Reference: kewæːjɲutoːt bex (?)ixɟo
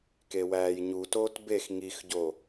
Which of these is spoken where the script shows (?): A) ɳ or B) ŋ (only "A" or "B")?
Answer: B